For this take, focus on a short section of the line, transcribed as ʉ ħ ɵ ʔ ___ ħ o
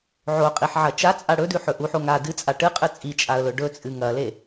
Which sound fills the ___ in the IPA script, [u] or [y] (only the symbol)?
u